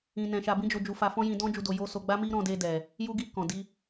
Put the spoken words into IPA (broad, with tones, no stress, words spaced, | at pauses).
ĩ˧nɛ̃˧ʃa˧ bĩ˦d͡ʒo˧d͡ʒu˧fa˧ fɔ̃˦jĩ˧dɔ̃˦ d͡ʒu˦do˧ jo˧ so˧ ɡ͡ba˦mi˦ɾɔ̃˧de˧ dɛ˨ | ju˧ɡi˧ kɔ̃˨di˧